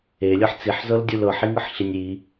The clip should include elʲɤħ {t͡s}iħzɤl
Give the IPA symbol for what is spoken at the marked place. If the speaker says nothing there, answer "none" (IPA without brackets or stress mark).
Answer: t͡s